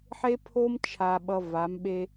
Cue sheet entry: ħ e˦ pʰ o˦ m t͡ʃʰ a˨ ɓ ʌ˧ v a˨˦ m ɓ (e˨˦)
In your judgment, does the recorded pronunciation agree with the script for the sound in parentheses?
no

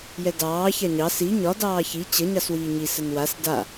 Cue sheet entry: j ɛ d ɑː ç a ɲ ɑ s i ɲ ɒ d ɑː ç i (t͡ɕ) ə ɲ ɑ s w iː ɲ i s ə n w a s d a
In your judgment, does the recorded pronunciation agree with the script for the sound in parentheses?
yes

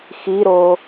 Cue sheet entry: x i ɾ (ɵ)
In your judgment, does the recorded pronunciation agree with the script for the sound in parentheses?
no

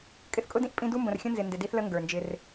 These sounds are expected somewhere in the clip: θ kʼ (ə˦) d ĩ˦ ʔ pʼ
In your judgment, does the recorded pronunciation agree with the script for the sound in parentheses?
no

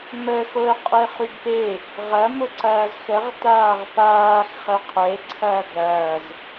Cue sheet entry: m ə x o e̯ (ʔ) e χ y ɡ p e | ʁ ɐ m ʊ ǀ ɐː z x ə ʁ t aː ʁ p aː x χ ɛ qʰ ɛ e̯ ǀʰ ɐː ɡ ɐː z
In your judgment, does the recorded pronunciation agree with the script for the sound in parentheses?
no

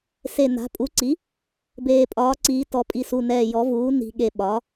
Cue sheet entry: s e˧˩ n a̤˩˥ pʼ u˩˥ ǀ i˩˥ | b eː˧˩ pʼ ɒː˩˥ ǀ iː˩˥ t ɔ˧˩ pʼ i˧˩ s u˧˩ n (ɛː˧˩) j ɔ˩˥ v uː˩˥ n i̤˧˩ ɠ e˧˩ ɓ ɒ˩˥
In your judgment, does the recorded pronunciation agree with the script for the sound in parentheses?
yes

